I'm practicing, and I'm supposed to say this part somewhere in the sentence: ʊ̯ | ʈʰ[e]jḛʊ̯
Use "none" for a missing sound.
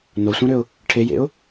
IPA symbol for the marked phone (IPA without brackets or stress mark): e